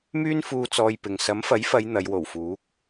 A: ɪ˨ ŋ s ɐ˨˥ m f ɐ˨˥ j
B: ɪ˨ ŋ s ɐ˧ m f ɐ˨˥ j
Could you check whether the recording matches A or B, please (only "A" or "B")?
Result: A